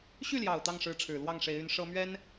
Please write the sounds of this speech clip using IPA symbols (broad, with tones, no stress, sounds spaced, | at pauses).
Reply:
ɕ y˥˩ l j ɑ˨˩ ʊ̯ t̪ ɑ˥˩ ŋ ʂ ɻ̩˧˥ ʈ͡ʂʰ ɻ̩˨˩ l w ɑ˥˩ ŋ ʂ e˧˥ ɪ̯ y˧˥ n ʂ ɤ˥ m ɥ ɛ˥ n